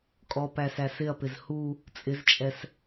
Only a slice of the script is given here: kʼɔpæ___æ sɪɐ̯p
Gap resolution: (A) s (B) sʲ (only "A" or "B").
A